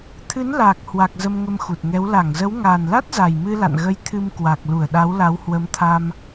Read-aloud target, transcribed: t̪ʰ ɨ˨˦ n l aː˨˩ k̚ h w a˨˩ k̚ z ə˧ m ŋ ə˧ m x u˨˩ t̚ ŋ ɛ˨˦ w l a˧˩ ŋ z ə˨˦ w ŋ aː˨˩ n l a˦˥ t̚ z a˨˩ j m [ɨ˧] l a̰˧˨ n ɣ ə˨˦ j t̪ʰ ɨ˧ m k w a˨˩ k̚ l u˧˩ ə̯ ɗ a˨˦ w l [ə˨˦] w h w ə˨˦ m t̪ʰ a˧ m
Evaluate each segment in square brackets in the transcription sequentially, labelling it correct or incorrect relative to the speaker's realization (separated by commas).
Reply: correct, incorrect